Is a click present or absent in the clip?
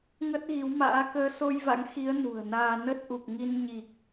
absent